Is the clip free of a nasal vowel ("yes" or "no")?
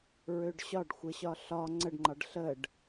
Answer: yes